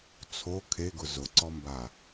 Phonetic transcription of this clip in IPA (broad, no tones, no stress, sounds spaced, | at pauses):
t͡sʰ o kʰ e ɡ ʊ z ʊ ǀ ɔ m b a